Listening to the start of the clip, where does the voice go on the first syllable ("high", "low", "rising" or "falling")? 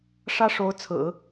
high